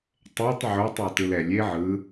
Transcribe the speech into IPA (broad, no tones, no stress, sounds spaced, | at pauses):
tˤ ɛ tˤ ʕ o tˤ o t ɯ l ɛ lʲ e ʕ ɯ